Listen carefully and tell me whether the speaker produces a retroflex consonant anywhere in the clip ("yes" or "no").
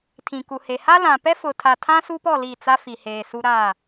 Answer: no